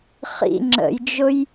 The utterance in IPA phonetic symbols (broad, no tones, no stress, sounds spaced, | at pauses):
χ ḭ ŋ͡ǁ ə̰ j d͡ʒ ʊ j